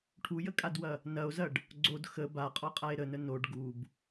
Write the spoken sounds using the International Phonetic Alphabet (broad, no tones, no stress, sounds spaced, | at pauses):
ʈʰ u j ə kʼ a d w ɐ | n ɐ o̯ z ɐ ɖ | ɡ͡ǀ o d x ə b a qʼ ɔ qʼ a e̯ ɾ ə n ə n o ɖ ɡ u b